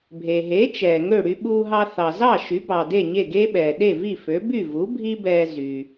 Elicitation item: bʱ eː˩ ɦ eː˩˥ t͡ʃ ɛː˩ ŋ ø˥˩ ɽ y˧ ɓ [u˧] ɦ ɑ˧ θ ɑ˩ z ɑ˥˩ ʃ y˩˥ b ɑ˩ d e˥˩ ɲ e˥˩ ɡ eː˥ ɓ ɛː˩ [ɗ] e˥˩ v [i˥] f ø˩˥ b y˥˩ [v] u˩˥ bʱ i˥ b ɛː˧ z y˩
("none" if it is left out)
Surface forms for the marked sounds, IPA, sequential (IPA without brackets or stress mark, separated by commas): uː˧, ɗ, i˥˩, v